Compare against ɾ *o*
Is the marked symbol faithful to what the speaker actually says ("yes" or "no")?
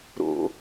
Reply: no